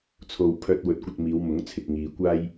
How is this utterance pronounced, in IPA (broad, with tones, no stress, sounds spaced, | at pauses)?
t͡sʰ o˨ w pʰ œː˧ t̚ w ɵ˨˥ t̚ kʷ ɐ˧ t̚ m iː˨˧ w m ʊ˨˥ ŋ t͡sʰ ɪ˨ k̚ ŋ iː˨ kʷ aː˥ j